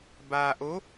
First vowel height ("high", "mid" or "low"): low